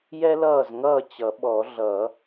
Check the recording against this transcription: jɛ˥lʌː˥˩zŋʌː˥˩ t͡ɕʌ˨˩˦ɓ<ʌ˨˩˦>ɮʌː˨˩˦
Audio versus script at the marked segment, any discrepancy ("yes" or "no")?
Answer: yes